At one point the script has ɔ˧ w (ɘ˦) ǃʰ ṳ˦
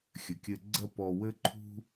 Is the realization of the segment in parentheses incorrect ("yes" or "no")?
no